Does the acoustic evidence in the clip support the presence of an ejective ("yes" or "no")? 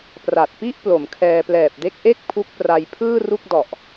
no